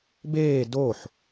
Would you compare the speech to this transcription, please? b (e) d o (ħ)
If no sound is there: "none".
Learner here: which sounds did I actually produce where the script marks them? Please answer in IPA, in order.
eː, ħ

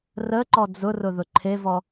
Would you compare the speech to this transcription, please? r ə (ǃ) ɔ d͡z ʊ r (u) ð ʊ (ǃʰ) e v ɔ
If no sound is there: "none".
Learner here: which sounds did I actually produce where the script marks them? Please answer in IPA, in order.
ǃ, ʊ, ǃʰ

